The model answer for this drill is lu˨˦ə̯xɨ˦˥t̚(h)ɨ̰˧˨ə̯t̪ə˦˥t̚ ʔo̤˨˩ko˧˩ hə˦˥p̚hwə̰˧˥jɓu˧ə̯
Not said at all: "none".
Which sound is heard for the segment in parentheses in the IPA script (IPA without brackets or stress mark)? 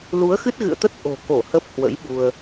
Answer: ɣ